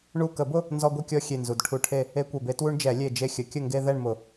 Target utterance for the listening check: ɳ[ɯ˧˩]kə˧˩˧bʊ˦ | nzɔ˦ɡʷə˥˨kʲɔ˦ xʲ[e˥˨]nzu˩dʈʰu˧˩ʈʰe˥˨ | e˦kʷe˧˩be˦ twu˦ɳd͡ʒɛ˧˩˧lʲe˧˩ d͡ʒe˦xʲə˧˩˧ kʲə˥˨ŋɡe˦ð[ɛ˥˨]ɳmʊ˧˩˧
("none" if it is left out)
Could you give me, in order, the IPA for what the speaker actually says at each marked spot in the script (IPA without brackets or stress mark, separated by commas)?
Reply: u˧˩, e˧˩, ɛ˥˨